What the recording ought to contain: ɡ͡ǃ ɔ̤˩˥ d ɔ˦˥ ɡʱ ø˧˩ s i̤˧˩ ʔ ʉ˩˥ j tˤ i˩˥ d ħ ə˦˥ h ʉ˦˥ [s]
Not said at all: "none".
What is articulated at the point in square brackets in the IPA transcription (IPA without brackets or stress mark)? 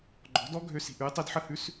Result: s